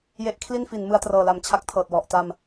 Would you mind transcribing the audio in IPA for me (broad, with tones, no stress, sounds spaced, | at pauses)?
j e˦˥ ʔ kʰ l i˥˩ n f i˩˦ n m ɯ˧ a̯ t r ɤː˨˩ l a˨˩ m t͡ɕʰ a˥˩ k̚ tʰ ɤː˨˩ t̚ w ɔ˨˩ ʔ t a˧ m